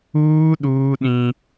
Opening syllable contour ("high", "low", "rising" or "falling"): high